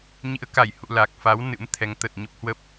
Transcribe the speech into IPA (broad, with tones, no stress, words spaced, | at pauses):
ɲḭ˧˥ə̯ka˧˩jhṵ˧˨ la˨˩k̚fa˨˦w nɨ̰˧˥mt̪ʰɛ˨˦ŋ t̪ə˨˩t̚ ɲə˦˥p̚hwə˦˥p̚